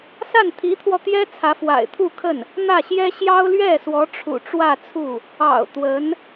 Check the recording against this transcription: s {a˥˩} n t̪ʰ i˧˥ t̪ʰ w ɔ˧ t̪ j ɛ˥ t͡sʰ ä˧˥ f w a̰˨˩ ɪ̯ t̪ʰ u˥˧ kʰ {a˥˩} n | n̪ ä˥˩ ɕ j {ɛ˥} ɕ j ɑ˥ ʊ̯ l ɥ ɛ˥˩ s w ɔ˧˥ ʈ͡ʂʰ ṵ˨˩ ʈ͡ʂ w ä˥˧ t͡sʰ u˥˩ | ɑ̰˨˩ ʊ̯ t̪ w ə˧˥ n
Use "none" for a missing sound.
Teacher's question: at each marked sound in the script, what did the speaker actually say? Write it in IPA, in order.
a˥˩, ə˥˩, ɛ˥

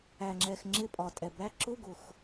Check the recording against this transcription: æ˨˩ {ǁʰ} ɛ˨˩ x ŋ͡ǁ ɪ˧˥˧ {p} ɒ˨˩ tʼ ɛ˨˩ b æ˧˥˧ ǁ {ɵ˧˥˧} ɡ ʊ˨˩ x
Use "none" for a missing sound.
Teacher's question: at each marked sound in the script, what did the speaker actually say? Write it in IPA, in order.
ŋ͡ǁ, pʼ, ʊ˧˥˧

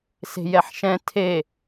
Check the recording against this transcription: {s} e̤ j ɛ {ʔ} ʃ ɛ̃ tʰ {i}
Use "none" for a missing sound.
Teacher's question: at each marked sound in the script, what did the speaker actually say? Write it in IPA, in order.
s, ħ, e

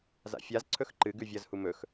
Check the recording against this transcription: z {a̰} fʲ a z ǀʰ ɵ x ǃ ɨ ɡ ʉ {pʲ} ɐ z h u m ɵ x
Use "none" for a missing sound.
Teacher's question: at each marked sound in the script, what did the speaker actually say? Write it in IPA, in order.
a̰, vʲ

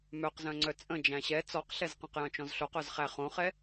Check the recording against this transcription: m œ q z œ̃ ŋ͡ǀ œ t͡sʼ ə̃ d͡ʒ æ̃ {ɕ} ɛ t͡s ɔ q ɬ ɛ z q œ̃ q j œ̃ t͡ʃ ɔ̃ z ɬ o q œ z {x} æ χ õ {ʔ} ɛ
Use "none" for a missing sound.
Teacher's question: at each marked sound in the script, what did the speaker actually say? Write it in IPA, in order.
ɕ, χ, χ

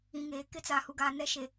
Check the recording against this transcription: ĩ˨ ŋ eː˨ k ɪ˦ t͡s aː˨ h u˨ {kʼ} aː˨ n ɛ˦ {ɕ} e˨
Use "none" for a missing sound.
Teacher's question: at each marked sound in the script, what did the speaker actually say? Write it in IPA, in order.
ɡ, ʃ

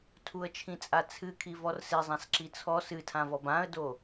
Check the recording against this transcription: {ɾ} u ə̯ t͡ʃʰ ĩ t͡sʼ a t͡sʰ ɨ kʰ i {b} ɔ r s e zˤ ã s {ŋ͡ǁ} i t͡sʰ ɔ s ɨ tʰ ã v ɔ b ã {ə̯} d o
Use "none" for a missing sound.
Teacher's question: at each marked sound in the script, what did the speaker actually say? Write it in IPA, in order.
tʰ, v, ǁ, ə̯

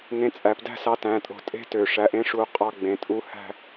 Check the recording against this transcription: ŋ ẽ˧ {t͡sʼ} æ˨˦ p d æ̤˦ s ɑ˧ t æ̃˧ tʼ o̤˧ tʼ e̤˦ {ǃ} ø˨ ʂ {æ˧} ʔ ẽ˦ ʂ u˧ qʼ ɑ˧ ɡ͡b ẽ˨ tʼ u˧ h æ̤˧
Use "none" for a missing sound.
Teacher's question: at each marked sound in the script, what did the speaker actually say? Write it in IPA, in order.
t͡sʼ, t, æ˧

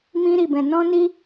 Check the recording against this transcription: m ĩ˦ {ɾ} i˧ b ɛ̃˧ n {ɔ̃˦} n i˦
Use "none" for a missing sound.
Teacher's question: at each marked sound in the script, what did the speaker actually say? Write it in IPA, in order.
ɾ, ɔ̃˦

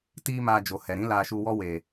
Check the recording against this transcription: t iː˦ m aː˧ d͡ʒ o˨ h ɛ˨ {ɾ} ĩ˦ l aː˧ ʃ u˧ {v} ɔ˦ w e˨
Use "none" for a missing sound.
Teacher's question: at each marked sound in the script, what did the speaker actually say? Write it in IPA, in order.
ɾ, w

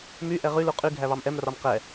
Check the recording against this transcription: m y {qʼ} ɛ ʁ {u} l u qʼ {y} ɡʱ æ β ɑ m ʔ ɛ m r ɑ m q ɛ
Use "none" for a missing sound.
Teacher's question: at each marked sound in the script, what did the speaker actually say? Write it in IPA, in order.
ʔ, y, y

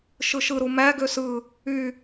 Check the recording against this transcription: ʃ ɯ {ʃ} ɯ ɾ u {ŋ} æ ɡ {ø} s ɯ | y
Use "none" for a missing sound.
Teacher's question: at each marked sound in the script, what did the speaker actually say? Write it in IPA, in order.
ʃ, m, ø

